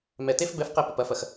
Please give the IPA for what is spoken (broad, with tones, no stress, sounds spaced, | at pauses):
m ɛ˨ t e˦ f b ɛ˦ f q ɛ˦ p ɪ˨ p ɐ˨ f ɐ˨ x